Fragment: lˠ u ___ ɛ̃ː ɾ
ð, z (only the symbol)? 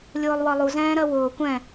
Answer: z